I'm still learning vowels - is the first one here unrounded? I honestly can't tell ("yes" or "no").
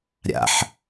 yes